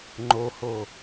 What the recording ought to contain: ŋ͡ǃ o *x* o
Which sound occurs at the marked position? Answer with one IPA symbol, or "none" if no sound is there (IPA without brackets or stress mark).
h